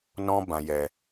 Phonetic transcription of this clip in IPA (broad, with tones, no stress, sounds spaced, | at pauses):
n ɔ̃˦ b ã˧ j ɛ˧